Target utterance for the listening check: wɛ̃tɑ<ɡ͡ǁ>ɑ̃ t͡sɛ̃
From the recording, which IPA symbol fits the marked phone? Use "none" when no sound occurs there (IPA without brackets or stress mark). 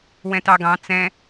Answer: ɡ